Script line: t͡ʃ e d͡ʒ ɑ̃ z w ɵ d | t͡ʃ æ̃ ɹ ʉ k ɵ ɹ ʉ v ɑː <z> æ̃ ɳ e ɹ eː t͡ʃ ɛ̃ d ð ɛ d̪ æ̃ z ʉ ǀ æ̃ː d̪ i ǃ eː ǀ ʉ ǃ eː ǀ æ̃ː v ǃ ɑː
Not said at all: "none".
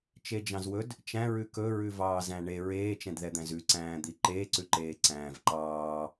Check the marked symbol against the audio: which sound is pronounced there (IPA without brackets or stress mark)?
z